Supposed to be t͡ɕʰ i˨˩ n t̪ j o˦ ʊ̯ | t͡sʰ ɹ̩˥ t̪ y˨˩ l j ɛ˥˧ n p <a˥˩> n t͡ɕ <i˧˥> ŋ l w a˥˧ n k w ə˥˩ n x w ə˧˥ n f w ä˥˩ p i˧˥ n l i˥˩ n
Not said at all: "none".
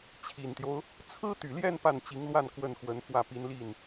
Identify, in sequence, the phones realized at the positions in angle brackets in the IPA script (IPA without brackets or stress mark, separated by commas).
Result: a˥˩, i˧˥